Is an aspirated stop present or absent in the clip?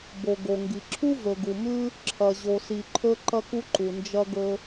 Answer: present